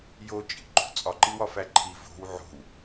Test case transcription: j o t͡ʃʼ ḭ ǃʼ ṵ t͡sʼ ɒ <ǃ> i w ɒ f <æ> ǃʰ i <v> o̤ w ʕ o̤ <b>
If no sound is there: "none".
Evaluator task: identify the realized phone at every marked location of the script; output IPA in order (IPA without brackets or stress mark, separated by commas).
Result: ǃ, æ, v, w